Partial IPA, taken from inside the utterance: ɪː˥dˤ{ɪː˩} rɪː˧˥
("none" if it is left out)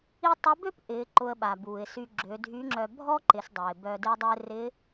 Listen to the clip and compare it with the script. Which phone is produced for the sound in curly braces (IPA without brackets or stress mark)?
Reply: ɪː˥